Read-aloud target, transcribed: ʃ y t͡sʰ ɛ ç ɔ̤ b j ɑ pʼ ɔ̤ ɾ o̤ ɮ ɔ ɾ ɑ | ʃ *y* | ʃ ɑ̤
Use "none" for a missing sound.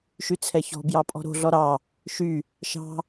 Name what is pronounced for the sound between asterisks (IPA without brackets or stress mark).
y